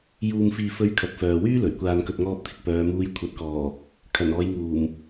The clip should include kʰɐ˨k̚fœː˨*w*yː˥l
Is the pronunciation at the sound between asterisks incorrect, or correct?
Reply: correct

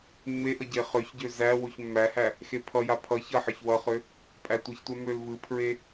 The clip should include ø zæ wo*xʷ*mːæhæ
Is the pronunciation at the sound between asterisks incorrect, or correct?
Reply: incorrect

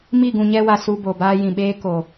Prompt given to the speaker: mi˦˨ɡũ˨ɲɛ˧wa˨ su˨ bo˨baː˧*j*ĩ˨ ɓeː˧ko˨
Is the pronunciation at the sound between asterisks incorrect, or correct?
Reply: correct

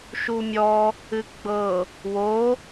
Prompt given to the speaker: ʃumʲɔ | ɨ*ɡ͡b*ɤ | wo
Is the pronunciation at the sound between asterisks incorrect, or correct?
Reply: correct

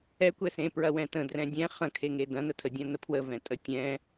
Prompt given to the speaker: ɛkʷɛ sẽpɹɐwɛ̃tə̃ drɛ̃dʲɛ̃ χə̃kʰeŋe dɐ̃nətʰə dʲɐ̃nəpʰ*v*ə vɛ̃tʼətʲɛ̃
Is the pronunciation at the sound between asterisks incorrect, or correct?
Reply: incorrect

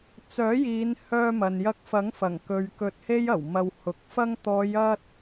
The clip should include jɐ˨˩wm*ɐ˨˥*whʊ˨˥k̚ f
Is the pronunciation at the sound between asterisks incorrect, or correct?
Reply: incorrect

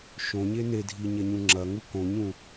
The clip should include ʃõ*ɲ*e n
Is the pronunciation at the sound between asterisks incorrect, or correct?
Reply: correct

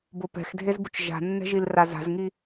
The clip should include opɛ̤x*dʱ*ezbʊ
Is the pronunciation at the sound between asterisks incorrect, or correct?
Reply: correct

